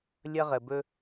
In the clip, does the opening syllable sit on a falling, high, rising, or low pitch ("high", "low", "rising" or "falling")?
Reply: high